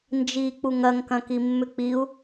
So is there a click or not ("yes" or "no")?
no